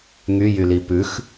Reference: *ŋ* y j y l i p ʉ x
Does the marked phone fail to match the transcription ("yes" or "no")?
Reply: no